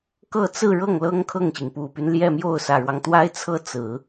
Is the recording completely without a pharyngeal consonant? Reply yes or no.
yes